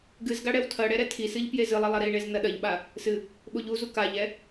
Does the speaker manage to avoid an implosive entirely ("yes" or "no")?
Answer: no